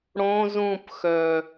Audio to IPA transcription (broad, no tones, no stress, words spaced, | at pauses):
ɽõz ũpxœ